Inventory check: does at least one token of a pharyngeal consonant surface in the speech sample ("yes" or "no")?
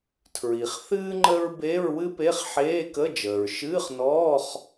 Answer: yes